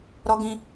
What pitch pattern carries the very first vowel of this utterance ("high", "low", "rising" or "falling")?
low